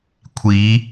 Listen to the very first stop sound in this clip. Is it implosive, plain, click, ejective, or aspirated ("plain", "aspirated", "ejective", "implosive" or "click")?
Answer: aspirated